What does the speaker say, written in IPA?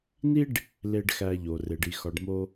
n i˥ ɖ | l e˨ ɖ x æ˨ ʎ o˩ r e˩ ɖ i˩ x ɒ˩ ɖ m o˨

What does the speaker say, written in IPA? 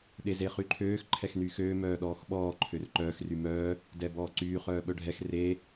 ɗ e z e χ y ǃʰ øː x ǃʰ ɛ x n yː x øː m œː ɗ ɔː x ɓ ɔː ǃʰ ø r ǃ œː x r y m œː | d ɛ b ɔː ǀ yː χ œː ɓ œ ɖʱ ɛ x r e

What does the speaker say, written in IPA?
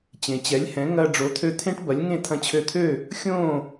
t͡ɕ ẽ˩ t͡ɕ ɛ˩˥ lʲ h ɛ̃˩˥ ŋ ɐ˧ ɖ͡ʐ o˩˥ t̪ʰ ø˥˩ t̪ʰ ẽ˥ ʈ b ɐ˩˥ lʲ ŋ ẽ˥˩ t̪ʰ ɐ̃˧ t͡ɕʰ ø˧ t̪ʰ ø˥˩ | xʲ õ˥˩

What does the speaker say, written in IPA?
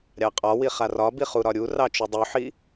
ɾʲ ɑ qʼ ɒ w i χ a r ɒ b i χ u ɾ ɒ ɾʲ u r ɑ t͡ʃ u dˤ u ħ i

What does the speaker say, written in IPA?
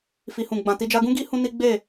f i˨ h ũ˨ ɡ͡b ã˨ t i˧ d͡ʒ a˦ ɡ ũ˦ ɡ i˦ h ũ˦ n i˦ ɡ͡b e˦˨

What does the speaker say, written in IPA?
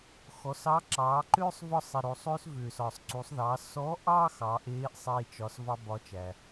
x ɔ˩˧ s ɑ˧˥ ǁ ɑː˩˧ ǃ ʏː˥ sˤ v ɒ˧ sˤ e˩ ɾ o˩ sˤ ʏː˧ s v ʏː˩ s ɒ˩ sˤ ǀ u˩˧ sˤ ð ɑ˩˧ s ɔ˧˥ ʔ ɑ˥ x ɑ˩˧ ʔ eː˧˥ ʔ sˤ eː˧ t͡ʃ ɒ˩˧ s v ɑ˥ b ɒ˧˥ t͡ʃ æ˩

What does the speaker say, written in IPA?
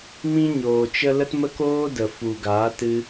m ĩ˦ ɲ oː˨ t͡ʃ ə˦ l ə˦ t m ə˦ k oː˦ d ə˨ f u˨ ɡ aː˨˦ t ɨ˧

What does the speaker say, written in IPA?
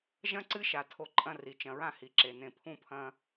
ʒ ɐ̃˥ ǀ ɨ˥ ʃ a˩ tʰ o˨ ǃʼ ɐ̃˦ r i˩ t͡ʃ ɐ̃˨ ɹ ã˦ h i˩ ǁ e˩ n ẽ˨ pʰ ũ˥ pʰ ɐ̃˦

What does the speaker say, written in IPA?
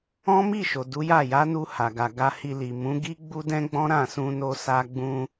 ɔ̃˦ m i˦˨ ʃ o˨ d u˨˦ j a˦˨ j a˨˦ n u˧ h a˨ ɡ a˨ ɡ a˧ h i˧ l i˨ m ũ˨˦ ɡ i˦ ɡ͡b u˦ d ɛ̃˦ ɡ͡b ɔ̃˦ ɾ ã˦˨ s ũ˧ n o˧ s a˧ ɡ͡b ũ˧

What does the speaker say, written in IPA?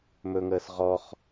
m ɵ ŋ əː s ʁ ɔ χ

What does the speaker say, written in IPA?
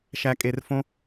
ʃ æ˧ kʼ e˧ r f õ˦

